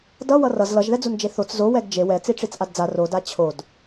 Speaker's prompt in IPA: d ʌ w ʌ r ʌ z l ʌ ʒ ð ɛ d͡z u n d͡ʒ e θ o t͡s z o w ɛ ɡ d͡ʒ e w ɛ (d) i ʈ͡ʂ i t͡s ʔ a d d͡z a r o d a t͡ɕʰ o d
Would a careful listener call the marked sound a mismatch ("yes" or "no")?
yes